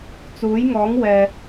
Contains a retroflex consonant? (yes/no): no